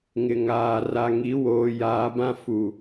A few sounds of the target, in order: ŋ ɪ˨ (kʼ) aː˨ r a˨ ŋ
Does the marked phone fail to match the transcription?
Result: yes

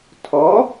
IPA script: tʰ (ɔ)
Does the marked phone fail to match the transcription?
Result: no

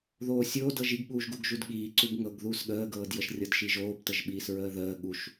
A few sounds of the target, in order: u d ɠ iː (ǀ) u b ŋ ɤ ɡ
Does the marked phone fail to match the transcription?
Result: no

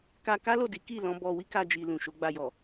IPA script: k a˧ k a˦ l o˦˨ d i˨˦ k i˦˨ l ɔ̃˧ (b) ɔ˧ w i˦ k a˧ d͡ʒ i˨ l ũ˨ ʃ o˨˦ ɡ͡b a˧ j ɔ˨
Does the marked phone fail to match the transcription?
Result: no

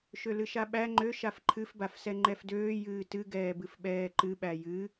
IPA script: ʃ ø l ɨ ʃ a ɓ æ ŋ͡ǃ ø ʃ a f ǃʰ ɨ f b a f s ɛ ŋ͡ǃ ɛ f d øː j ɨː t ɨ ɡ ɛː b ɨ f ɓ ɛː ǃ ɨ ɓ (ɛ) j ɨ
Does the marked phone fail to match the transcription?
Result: yes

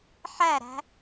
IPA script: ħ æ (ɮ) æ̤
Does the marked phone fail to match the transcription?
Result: yes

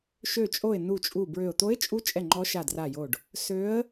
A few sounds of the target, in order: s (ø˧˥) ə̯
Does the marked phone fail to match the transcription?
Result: no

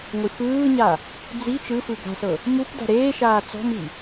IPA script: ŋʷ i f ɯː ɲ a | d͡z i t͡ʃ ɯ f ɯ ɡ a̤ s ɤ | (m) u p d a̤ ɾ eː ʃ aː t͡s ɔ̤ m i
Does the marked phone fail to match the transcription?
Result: no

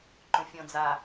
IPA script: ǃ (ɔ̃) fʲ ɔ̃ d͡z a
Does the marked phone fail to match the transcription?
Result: yes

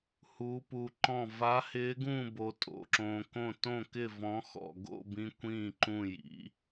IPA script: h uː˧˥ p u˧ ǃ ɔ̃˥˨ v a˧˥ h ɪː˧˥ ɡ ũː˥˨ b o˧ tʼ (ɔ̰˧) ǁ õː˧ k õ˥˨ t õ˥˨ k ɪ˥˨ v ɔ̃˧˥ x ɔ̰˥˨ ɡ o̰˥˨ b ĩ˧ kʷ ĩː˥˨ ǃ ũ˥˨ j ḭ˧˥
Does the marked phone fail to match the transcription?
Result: yes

